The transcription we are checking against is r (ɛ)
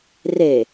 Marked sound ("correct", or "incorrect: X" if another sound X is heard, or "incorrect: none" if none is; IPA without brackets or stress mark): incorrect: e